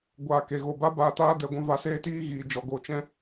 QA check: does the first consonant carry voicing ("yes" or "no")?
yes